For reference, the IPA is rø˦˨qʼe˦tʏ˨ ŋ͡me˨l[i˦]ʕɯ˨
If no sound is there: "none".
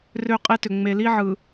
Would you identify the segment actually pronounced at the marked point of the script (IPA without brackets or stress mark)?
i˦